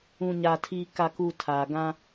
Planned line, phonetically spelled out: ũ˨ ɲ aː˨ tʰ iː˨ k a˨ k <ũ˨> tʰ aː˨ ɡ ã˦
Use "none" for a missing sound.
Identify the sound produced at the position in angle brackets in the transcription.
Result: u˨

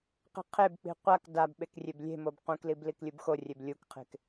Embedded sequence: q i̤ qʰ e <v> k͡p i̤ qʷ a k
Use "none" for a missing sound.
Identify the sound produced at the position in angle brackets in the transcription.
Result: b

